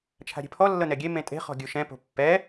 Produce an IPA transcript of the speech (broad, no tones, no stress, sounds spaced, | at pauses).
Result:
t͡ʃʰ a̤ ɾʲ e̤ pʰ ɔ lː ɤ n ɛ ɡʲ e m ẽ tʼ e̤ χ ɔ̤ ɡʲ u ʃ ɛ̃ p o̤ pː ɛ